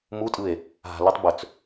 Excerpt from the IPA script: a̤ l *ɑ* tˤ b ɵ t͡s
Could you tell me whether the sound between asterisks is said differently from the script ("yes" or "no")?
yes